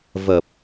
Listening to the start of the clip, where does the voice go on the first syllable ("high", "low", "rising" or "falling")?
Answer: low